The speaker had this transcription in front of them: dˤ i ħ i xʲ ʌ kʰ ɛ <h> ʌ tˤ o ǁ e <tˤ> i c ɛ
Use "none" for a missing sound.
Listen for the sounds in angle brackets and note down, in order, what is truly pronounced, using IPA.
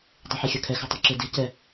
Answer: x, d

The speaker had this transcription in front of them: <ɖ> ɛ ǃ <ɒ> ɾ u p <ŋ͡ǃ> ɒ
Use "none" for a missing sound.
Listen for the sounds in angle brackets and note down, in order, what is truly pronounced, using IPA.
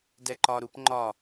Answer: d, ɒ, ŋ͡ǃ

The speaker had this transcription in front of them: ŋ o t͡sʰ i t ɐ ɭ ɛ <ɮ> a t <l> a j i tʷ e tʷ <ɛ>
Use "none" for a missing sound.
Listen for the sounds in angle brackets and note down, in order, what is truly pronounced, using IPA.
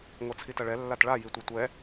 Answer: lː, ɭ, ɛ

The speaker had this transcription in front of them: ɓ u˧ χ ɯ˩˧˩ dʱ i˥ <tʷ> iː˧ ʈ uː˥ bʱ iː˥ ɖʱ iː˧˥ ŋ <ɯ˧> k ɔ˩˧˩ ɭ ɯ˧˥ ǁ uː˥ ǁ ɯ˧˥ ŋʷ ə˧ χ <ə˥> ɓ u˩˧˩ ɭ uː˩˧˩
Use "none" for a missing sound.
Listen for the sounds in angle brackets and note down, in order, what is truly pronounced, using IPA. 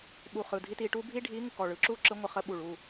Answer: t, ɯ˧, ə˧˥

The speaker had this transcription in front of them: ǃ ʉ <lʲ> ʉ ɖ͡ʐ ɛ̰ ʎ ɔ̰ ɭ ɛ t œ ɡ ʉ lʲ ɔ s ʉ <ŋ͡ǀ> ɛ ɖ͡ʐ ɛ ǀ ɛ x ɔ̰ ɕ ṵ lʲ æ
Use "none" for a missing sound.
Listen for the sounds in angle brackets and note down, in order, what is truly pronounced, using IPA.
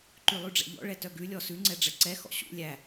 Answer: lˠ, ŋ͡ǀ

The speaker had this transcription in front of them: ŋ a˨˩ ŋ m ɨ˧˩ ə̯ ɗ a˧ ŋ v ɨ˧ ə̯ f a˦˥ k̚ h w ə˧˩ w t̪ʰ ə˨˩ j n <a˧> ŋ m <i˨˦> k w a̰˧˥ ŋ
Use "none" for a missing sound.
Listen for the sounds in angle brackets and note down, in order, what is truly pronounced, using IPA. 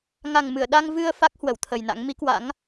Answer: a̰˧˥, i˨˦

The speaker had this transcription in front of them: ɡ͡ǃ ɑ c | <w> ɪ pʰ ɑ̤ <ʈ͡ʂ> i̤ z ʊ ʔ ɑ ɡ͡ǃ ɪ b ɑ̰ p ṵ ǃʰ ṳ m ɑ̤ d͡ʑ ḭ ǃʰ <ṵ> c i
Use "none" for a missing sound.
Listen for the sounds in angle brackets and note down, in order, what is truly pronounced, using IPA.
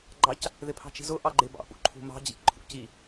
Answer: ð, t͡ʃ, ṵ

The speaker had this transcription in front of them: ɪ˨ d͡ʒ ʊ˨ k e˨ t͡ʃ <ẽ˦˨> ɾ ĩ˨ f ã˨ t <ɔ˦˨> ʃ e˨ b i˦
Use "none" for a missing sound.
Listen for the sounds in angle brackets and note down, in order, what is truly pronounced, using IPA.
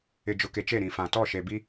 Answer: e˦˨, ɔ˦˨

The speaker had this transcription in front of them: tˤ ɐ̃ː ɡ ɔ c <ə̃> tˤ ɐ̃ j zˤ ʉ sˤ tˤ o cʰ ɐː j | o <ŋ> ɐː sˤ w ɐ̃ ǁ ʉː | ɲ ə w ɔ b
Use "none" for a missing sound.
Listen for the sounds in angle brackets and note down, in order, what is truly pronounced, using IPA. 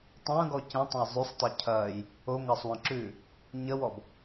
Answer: ə̃, ŋ

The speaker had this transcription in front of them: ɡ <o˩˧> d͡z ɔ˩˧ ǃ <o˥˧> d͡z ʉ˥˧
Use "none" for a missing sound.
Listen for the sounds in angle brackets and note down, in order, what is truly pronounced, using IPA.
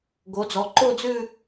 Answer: o˩˧, o˥˧

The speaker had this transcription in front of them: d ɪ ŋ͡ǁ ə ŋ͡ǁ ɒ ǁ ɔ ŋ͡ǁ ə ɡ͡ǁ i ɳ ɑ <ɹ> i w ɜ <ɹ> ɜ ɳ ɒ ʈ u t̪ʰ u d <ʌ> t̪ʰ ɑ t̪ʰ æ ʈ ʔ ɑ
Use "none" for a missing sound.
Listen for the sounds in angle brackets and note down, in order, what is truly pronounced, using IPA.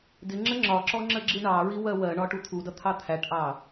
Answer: ɹ, w, ʌ

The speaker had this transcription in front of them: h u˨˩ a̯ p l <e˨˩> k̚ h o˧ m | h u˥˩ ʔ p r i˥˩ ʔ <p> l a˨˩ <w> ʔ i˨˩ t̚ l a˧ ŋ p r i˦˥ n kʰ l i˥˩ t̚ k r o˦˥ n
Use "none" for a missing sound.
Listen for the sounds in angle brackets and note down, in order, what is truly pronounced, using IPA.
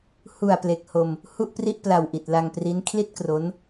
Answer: e˨˩, p, w

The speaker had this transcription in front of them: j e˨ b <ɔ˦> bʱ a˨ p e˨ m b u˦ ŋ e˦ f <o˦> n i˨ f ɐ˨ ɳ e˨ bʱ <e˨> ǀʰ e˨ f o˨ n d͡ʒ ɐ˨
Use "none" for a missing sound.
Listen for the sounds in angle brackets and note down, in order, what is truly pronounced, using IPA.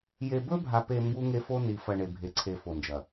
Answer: ɵ˦, o˦, e˨

